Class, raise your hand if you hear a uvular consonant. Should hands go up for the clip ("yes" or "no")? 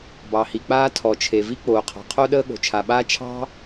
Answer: yes